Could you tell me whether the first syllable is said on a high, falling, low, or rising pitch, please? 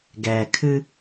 low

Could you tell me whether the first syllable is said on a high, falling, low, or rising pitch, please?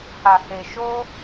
low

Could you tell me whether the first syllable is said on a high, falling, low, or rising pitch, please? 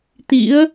rising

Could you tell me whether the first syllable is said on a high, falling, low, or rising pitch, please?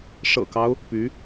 low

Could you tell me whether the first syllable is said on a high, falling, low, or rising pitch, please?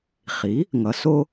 rising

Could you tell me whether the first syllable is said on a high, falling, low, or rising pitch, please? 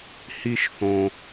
high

